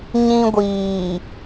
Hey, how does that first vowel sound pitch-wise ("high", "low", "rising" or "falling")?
high